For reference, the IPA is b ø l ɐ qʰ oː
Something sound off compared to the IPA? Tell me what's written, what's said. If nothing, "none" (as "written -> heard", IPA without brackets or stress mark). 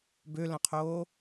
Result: ɐ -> ɐ̃